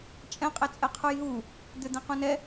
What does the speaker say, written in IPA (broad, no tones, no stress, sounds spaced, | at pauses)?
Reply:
t͡ʃʼ ɛ̃ qʼ ɛ t͡sʼ ɛ qʰ u j ɦ u | d̪ ʏ d̪ ɛ̃ q ũ n ɛ